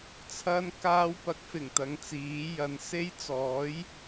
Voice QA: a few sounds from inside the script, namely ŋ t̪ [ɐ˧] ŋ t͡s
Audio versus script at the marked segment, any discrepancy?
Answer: yes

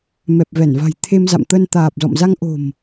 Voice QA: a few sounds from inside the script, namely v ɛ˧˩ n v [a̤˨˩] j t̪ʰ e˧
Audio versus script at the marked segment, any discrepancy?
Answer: no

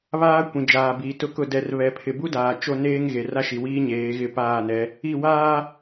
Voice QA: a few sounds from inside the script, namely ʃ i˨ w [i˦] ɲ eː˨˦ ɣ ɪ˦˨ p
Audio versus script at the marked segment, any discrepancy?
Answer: yes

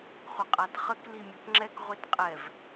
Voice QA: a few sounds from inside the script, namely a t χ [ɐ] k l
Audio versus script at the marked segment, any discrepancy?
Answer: yes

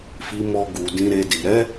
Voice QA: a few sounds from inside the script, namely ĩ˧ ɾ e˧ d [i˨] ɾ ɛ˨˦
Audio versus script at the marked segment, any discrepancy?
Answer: no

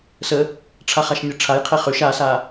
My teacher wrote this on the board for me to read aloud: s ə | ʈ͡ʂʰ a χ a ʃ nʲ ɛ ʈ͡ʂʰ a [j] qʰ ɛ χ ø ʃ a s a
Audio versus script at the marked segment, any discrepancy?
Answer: no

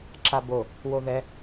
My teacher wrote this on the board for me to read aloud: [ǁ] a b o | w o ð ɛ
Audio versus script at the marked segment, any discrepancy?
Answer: no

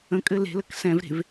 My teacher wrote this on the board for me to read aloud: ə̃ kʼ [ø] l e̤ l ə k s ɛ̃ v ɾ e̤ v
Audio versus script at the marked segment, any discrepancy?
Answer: yes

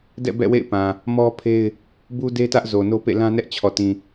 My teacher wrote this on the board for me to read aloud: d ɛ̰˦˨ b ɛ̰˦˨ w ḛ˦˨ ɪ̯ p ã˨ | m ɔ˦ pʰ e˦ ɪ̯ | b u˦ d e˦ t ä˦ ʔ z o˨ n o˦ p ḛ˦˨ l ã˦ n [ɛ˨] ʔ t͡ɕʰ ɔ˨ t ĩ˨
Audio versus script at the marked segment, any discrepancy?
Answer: yes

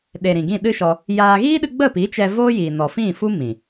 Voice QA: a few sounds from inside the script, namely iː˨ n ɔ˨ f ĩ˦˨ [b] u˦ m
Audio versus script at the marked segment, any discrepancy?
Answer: yes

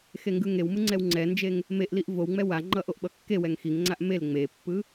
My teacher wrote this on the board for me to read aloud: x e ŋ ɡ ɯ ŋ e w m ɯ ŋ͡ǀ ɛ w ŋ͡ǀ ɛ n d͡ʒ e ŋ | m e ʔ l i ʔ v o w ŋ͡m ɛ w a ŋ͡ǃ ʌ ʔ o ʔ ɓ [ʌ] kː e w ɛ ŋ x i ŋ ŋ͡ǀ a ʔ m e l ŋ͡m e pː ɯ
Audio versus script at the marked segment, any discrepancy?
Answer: no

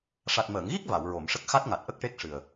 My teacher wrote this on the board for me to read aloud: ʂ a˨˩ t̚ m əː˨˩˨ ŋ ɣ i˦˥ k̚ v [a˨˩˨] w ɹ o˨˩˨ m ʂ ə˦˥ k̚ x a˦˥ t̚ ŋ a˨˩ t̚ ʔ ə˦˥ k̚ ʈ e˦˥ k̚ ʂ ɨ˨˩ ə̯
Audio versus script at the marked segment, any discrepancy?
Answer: no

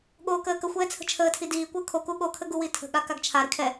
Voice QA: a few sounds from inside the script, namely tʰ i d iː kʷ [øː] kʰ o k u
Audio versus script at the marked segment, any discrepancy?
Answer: yes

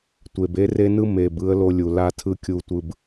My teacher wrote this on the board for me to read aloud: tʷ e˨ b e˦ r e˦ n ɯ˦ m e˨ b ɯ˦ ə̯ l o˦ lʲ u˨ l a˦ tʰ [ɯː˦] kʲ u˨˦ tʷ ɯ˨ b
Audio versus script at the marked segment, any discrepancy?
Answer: yes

